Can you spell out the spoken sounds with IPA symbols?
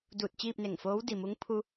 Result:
duː˧˩t̚t͡ɕiː˥˨p̚ ne˧˩ŋfoː˧˥w di˩mu˧˥ŋ pʰu˧

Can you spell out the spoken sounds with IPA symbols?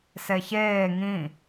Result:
seçeː ŋĩ

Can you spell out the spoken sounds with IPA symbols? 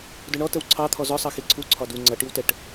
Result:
dʊɳɔ təwǀʰɑ t̪ʰɔzɔ sˤɑxiǀʰu ǀʰɒdu ŋ͡ǀʌ ʈiwtəʈ

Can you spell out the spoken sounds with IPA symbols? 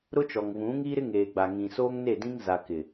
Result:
ɾʊ˦t͡ʃɔ˨ŋvũ˨˦ŋi˦ ɾɪ˦ŋeː˨ɡ͡ba˨ ŋĩ˨soː˦ŋne˦˨dĩ˦ŋ za˨kɪ˨

